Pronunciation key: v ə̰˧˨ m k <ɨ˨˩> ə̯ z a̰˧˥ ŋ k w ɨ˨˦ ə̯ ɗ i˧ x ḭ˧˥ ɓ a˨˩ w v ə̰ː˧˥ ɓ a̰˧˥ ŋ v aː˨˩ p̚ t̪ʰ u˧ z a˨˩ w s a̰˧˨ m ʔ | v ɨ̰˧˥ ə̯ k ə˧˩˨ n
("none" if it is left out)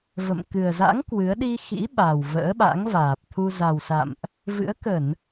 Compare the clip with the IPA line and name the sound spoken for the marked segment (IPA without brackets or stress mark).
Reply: ɨ˨˩